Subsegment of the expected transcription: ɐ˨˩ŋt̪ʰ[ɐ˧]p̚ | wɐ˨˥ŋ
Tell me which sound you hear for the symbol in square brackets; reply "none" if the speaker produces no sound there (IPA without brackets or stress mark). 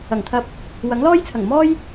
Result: ɐ˧